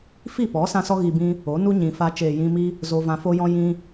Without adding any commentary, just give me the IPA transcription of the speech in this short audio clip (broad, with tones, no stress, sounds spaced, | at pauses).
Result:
f i˦˨ p ɔ˨˦ s ã˧ s ɔ˧ ɣ i˨ b ĩ˧ | o˨˦ n u˦ ɲ ĩ˨ f a˧ t͡ʃ eː˨ j ĩ˧ m i˦ | z o˧ v ã˧ f o˦ j ɔ̃˦ j ĩ˧